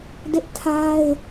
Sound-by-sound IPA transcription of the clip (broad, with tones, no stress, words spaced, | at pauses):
dɪ˦ʔtʰa˦ɪ̯